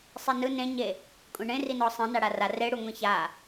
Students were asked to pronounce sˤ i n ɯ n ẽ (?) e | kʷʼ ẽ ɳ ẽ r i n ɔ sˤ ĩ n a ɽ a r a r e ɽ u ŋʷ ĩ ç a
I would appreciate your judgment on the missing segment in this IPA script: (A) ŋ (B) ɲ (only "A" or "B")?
B